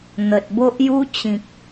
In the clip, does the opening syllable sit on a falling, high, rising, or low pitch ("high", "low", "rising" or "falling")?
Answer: low